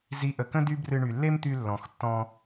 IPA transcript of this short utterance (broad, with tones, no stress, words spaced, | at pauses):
zi˨˦ʔə˨kə̃˦ dy˦brɨ˧ ɳy˨lːe˦mt̪y˧ lːɔ̃˨x tːɔ̃˧